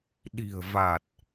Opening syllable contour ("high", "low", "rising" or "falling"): low